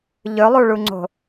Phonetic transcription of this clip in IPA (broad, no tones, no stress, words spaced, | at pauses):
ʎɵlˠuɭuŋ͡ǀo̤